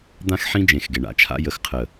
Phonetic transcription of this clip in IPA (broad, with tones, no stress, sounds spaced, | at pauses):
d̪ ã˦ x ħ ĩ˦ d͡ʒ ẽ˨ x ɡ e˨ ɳ a̰˦ t͡ʃʰ a̰˦ j ə˨ x qʰ ə˨